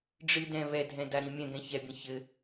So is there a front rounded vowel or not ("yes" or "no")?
no